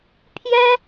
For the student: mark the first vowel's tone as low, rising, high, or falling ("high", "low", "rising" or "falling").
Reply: high